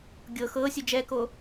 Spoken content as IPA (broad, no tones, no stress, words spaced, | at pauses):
ɡʲɤ xɤːsʲu d͡ʒɛkoː